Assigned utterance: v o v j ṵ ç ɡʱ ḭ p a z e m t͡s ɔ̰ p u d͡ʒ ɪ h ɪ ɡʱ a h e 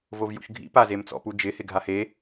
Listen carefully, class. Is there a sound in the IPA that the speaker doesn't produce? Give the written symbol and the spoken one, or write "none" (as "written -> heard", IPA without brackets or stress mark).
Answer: none